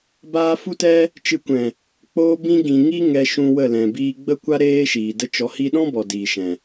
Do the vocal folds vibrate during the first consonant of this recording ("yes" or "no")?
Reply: yes